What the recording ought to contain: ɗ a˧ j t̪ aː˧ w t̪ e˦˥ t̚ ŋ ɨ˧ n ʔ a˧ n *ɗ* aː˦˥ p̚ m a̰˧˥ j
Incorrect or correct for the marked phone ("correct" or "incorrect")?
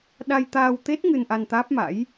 incorrect